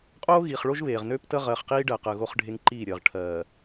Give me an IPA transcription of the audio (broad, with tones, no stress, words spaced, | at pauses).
qʼoː˦ɣiː˨χ ɭo˦ʒβeː˨ʁ nøː˦ptə˦ʁɜː˨χqiː˦ ɖɜ˨qəː˨ ɣo˦χɖʱe˦ŋǃiː˦˨ɾʲəː˨ʁ ʈʰɜː˨